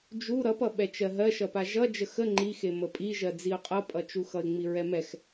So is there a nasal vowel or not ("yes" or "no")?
no